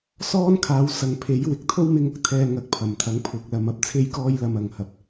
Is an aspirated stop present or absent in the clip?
present